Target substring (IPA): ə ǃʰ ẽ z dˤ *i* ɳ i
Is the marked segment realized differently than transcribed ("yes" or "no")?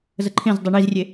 no